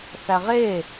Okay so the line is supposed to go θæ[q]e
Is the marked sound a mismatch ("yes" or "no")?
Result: yes